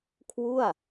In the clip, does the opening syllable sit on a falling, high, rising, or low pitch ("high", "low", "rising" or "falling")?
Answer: falling